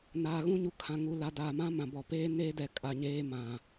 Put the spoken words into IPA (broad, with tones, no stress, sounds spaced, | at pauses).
n aː˨ ɣ ũ˦ ɲ u˨ kʰ ã˨ ŋ u˨ l a˨ d aː˨ m ã˦ m ã˨ b ɔ˨ p eː˦ n eː˦ d ɛ˨ kʼ a˨ ɲ eː˦ m ã˨